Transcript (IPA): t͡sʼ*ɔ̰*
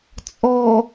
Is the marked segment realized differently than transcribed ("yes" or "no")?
yes